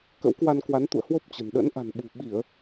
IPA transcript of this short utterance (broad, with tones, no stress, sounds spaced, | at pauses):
k ə̰˧˥ w k w a˧ n k w a˨˦ n t̪ ṵ˧˨ ə̯ h w o˦˥ p̚ t͡ɕ ə̤˨˩ n ɗ ə̰˧˥ n ʔ a̤˨˩ n ɓ ṳ˨˩ ɓ i˧˩˨ ə̯